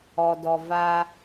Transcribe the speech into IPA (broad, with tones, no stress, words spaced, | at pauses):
ɔ˨dɔ˨ va˦